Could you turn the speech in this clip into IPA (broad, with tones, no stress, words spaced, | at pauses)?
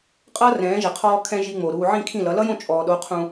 qʼʌː˦rɛ̃ː˨˦ʒɛ˨ qʰɔː˧kʰɛ̃˧ ʒi˧ŋ͡mo˨ ɾuː˨ ʕĩ˦˨kʰĩ˦˨lʌ˨˦ lʌ˦jõ˦˨ t͡ʃʼɔː˨ ɗo˨˦ qʰũ˧